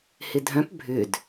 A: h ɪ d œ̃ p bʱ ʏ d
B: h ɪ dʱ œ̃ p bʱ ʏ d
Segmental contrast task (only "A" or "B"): B